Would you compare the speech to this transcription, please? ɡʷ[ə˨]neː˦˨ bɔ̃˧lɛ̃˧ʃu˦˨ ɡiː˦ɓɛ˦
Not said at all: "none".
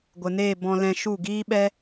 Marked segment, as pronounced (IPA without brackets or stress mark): ə˨